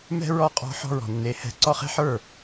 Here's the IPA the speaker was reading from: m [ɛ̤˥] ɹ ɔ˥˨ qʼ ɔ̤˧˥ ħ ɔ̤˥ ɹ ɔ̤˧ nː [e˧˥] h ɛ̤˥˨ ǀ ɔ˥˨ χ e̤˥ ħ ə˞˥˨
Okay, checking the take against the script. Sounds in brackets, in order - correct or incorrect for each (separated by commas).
correct, correct